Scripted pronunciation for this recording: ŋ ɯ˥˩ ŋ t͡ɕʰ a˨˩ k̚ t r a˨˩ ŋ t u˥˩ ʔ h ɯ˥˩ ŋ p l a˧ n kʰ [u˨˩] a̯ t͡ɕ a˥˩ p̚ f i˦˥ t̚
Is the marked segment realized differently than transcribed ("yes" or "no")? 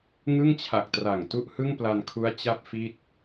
yes